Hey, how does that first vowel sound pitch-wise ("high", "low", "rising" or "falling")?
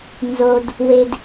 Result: low